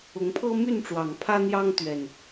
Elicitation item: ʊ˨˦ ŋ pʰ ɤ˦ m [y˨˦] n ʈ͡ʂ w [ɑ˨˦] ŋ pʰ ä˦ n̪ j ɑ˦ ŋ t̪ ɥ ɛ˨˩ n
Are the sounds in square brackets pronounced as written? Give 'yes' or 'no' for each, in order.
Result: no, no

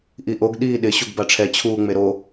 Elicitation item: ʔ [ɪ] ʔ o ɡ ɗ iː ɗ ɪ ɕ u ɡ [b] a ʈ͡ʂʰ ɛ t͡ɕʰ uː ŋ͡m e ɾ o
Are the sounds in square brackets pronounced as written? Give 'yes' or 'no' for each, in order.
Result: no, yes

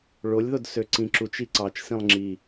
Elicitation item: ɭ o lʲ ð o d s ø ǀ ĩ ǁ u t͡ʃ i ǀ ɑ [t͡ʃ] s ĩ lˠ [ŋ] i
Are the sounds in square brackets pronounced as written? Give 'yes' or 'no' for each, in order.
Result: yes, no

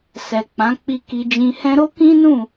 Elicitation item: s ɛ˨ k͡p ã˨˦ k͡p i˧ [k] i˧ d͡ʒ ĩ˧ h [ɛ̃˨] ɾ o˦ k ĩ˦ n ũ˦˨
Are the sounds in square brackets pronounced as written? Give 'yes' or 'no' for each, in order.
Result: yes, no

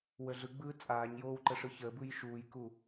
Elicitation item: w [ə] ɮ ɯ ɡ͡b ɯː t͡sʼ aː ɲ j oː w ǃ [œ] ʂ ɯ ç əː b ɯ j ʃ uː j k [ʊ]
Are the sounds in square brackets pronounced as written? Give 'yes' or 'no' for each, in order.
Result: yes, no, no

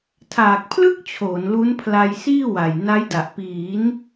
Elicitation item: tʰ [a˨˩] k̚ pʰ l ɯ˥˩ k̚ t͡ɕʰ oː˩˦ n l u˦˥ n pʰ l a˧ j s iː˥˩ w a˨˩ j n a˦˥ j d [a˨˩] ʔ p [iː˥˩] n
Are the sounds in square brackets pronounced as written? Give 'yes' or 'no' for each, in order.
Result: no, yes, no

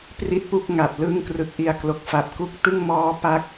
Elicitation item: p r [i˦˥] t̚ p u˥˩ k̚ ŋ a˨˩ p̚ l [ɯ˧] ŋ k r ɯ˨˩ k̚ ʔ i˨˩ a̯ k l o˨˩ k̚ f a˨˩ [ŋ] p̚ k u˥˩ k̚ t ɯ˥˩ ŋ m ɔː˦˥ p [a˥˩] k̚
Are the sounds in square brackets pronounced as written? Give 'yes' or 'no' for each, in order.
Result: no, no, no, no

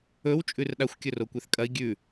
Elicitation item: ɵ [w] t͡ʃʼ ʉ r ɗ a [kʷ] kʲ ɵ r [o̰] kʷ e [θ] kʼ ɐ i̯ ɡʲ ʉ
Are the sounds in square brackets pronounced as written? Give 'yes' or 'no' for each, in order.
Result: yes, no, no, yes

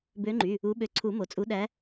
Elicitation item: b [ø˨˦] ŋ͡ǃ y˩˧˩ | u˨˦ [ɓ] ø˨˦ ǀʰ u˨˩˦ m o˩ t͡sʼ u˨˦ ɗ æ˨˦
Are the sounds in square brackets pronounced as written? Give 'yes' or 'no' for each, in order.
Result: yes, yes

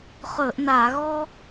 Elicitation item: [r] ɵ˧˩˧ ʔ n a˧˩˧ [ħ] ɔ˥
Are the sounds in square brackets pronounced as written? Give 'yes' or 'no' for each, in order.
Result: no, no

